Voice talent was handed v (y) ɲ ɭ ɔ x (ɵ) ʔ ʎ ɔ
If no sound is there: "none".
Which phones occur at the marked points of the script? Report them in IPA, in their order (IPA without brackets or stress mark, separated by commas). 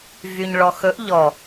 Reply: y, ɵ